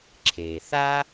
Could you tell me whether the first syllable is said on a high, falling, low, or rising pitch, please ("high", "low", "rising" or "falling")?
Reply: low